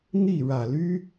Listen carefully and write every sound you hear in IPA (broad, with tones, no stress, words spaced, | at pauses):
n̪i˥˨ ɻä˨˩ly˦